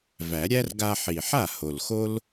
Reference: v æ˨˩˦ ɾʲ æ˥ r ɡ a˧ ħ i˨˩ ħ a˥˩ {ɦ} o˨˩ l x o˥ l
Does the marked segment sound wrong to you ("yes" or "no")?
yes